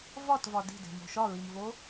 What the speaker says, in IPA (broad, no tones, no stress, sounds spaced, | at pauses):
v ɒ t v ɒ d i̤ d e̤ m o̤ ʃ ɒ ɹ i m v o